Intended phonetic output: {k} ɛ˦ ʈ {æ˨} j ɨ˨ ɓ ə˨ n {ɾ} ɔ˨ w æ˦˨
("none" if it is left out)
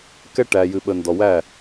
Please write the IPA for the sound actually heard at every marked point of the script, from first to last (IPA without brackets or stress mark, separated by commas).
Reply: k, æ˨, d